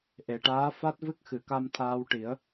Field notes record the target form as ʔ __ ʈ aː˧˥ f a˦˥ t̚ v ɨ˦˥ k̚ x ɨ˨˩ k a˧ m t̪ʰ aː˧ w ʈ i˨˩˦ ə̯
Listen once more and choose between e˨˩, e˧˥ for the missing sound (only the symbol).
e˨˩